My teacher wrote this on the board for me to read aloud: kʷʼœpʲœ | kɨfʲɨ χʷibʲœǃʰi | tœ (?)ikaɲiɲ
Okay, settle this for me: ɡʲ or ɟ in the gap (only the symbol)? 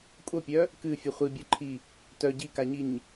ɟ